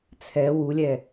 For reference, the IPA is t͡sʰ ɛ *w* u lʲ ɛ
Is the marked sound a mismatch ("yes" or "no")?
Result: no